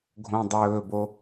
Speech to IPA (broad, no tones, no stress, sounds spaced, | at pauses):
ɡʱ õ dˤ ɵː b o